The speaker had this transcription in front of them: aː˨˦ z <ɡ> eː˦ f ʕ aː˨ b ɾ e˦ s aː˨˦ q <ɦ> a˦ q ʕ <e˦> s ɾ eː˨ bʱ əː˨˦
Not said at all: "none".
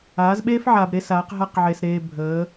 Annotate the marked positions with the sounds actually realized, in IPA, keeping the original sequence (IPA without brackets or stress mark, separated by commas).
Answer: ɓ, ɦ, e˨